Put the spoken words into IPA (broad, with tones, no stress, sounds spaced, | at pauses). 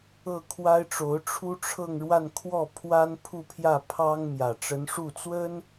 ɤ˥˩ kʰ w a˥ ɪ̯ ʈ͡ʂ o˧˥ ʊ̯ ʈ͡ʂʰ u˥ ʈ͡ʂʰ ɤ˥˧ ŋ ɻ w a˥˧ n kʰ w ɔ˥˩ pʰ w a˥ n pʰ u˥˧ pʰ j ä˥˩ pʰ ɑ˥ ŋ m j ä˨˩ ʈ͡ʂ ə˧˥ n ʂ u˥˩ t͡s w ə˥ n